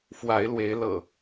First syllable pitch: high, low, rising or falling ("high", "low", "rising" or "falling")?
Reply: rising